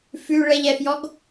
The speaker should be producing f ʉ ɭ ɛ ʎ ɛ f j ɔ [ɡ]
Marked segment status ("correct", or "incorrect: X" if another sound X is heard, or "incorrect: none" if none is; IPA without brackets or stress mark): correct